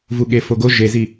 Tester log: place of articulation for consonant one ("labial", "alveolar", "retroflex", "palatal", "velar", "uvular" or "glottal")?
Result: labial